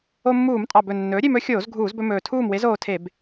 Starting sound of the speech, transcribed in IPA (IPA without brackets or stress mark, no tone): o